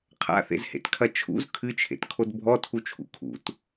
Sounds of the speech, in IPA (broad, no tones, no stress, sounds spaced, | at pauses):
qʰ a̰ θ ḛ z h ḛ t kʰ ɐ t͡ʃʰ ṵ z kʰ ɨ t͡ʃʰ ḛ t kʰ o d bʱ ɔ tʰ u t͡ʃʰ ṵ kʰ ṵ t